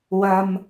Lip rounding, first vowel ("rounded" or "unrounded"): unrounded